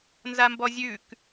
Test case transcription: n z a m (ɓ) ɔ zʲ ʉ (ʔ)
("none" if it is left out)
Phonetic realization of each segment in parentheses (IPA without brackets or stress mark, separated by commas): b, k